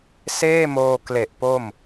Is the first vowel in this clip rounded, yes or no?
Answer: no